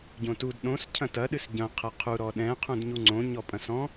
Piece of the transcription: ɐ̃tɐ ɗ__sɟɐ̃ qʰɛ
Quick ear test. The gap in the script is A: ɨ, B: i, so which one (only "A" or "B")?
A